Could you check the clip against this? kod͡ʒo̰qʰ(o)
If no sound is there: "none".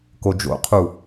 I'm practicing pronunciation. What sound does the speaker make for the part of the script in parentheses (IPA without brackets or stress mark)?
u